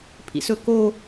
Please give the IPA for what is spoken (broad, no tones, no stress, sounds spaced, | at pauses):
pʰ ḭ s ɵ k o